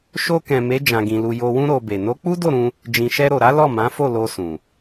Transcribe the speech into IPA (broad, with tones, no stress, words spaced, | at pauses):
ʃo˧kɛ̃˨me˨˦ d͡ʒã˧ɡĩ˧lu˧ jo˨wũ˧ ɾo˧be˨ no˨˦k͡pu˦do˦˨ɾũ˧ | d͡ʒĩ˨ʃɛ˧ ɾo˨ɾa˨˦ lɔ˦˨mã˨˦fo˦˨ lo˧ sũ˨